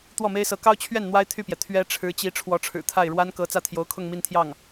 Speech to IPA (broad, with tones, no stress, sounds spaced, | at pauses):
t̪ w ɔ˥˩ m e˥ ɪ̯ s ɤ˧˥ k ɑ˥ ʊ̯ t͡ɕʰ ɥ ɛ˥˩ n n̪ w a˥ ɪ̯ t̪ʰ y˥˩ p j ɛ˩ t̪ʰ ɥ ɛ˥ ʈ͡ʂʰ ɻ̩˧˥ t͡ɕ i˧˥ ʈ͡ʂʰ w ɔ˧˥ ʈ͡ʂʰ ɻ̩˨˩ t̪ʰ a˥˩ ɪ̯ ɻ w a˥ n k ɤ˧˥ t͡s ä˥˩ t̪ʰ j o˧˥ ʊ̯ kʰ ʊ˥˧ ŋ m i˥˧ n t̪ʰ j ɑ˥˩ ŋ